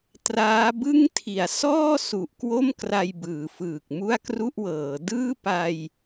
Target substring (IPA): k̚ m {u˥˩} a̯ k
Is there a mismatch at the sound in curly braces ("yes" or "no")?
no